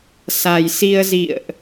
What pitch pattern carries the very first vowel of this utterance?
low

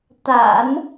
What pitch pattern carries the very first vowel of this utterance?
low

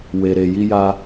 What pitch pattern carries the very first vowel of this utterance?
low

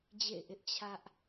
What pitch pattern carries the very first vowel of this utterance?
falling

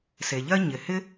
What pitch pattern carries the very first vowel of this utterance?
low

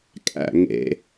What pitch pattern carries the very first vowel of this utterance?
falling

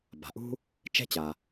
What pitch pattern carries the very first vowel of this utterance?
low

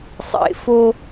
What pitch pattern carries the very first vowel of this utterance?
low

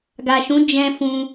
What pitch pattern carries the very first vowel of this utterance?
low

